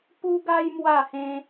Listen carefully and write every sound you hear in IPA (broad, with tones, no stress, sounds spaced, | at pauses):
p u˦ ɡ a˦ j m w a˥˧ h ẽ˦